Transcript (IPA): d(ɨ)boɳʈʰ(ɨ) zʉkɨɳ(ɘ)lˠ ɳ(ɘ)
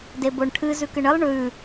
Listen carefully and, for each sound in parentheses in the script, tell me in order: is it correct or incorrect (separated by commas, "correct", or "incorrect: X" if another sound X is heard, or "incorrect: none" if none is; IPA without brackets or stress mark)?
incorrect: e, correct, correct, incorrect: ʉ